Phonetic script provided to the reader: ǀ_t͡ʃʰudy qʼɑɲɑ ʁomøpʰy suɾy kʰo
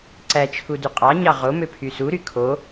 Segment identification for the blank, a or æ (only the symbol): æ